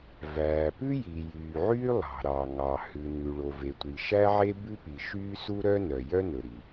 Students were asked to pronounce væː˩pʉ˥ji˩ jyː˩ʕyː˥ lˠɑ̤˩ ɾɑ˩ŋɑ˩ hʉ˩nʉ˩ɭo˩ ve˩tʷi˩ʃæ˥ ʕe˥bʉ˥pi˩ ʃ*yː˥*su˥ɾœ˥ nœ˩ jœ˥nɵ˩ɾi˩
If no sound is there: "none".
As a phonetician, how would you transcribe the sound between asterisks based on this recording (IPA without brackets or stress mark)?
yː˥